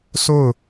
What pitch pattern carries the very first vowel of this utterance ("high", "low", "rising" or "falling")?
falling